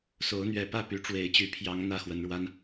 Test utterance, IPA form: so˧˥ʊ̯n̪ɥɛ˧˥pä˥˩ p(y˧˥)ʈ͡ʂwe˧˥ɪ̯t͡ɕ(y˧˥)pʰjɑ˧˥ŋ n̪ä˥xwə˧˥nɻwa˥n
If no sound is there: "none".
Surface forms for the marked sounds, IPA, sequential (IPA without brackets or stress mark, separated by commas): y˧˥, y˧˥